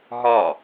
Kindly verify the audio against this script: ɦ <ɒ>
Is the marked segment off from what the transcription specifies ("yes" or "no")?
no